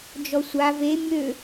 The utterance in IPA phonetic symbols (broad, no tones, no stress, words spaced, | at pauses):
d͡ʒɔsʷa ve mʲø